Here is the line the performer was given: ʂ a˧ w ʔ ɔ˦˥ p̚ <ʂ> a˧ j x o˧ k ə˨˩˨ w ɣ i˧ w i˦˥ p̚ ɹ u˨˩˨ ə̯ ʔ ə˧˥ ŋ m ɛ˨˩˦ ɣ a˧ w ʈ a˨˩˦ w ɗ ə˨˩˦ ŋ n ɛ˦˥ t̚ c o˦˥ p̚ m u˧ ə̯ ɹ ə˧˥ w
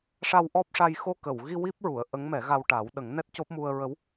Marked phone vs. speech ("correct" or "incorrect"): correct